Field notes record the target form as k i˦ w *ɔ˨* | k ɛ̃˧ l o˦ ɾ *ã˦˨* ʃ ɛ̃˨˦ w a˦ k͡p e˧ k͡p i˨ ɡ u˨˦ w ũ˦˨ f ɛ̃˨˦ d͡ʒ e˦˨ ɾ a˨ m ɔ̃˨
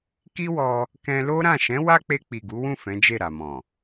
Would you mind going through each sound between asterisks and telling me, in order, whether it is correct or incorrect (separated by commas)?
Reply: incorrect, correct